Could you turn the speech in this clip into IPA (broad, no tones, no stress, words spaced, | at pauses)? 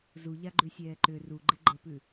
zuʎaɡ͡ǃʉsʲɛː ǃʏ ruɡ͡ǃɪ ɡ͡ǃəpʉ